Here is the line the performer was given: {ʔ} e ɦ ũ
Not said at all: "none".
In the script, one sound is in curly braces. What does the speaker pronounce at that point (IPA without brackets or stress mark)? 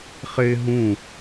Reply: χ